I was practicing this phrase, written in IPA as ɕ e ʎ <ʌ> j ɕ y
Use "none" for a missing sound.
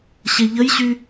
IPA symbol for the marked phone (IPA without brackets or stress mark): ə